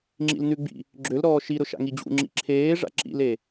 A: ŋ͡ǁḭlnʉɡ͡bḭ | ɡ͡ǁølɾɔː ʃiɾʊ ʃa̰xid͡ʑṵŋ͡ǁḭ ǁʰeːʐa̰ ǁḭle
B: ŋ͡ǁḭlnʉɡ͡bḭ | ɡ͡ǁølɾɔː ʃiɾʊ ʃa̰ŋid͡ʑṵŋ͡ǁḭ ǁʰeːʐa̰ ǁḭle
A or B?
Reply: B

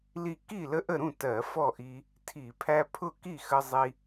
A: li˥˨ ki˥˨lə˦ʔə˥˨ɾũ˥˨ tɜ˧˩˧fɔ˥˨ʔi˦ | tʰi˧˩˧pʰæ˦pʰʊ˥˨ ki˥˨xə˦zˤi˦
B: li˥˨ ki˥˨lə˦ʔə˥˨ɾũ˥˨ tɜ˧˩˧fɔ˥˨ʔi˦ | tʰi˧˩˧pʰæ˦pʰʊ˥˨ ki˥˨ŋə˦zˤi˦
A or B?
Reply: A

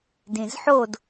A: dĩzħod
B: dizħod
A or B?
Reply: A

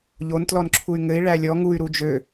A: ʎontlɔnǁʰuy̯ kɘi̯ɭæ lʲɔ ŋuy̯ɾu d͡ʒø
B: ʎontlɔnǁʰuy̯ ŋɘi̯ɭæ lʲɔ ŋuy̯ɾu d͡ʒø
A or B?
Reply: B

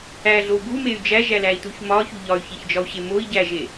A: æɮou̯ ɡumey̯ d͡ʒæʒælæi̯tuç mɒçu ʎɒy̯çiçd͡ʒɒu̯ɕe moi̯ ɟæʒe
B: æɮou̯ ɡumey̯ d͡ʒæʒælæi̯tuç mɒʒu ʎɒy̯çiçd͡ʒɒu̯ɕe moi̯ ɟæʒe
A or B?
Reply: A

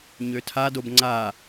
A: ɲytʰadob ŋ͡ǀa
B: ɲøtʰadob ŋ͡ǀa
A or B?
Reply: B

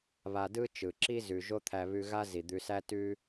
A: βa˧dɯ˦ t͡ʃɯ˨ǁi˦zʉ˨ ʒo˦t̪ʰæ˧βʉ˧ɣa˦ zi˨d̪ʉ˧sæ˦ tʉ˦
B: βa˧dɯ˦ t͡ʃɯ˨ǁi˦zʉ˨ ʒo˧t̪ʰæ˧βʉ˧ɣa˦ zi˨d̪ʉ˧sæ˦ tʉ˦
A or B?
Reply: A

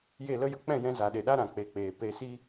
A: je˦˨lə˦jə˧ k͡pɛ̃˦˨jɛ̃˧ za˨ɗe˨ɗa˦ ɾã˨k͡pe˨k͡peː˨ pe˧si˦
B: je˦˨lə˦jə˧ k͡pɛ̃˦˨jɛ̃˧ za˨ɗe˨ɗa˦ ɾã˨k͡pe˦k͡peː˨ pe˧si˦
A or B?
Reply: A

